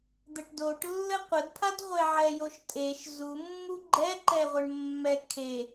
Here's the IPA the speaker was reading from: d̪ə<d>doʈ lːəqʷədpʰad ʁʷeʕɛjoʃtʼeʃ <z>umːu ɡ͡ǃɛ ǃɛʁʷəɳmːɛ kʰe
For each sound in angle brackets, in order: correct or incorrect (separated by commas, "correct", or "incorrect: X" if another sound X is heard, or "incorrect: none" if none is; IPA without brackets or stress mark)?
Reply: incorrect: ʈ, correct